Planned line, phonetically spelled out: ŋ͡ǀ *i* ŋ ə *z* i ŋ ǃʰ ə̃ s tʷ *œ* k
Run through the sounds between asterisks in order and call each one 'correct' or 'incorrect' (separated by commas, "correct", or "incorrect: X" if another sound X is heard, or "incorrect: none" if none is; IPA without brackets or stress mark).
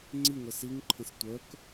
correct, incorrect: s, correct